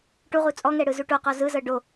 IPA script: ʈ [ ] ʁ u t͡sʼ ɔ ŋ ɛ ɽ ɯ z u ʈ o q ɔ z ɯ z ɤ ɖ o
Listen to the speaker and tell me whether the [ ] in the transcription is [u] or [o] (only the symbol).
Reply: u